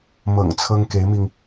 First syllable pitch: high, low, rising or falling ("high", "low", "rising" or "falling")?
low